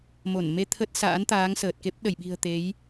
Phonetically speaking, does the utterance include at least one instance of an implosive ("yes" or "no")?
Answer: yes